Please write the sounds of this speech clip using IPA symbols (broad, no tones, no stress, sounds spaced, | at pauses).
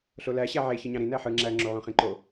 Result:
ɬ o l æ ɕ æ ʕ e ç ɯ ɲ ɑ̃ ɾ ĩ n æ ħ ɯ ŋ͡ǁ æ ŋ͡ǁ o ʕ õ χ ĩ ǃ o